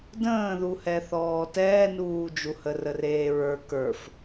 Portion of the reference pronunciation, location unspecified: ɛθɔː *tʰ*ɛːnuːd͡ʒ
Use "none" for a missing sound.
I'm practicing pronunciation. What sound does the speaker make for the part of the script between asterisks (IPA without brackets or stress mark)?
t